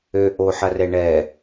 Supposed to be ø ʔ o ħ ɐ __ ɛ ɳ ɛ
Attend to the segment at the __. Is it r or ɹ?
r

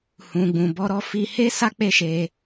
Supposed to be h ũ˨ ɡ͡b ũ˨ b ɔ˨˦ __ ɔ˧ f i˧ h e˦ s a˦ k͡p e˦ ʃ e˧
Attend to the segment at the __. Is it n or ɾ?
ɾ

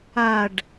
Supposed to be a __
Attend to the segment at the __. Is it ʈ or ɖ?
ɖ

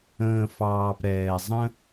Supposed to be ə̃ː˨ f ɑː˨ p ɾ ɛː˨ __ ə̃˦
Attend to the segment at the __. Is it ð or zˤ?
zˤ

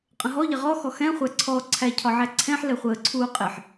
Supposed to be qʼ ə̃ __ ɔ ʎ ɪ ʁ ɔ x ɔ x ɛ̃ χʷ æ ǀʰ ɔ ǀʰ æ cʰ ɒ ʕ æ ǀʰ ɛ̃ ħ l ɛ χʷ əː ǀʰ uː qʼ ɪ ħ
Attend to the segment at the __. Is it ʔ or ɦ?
ɦ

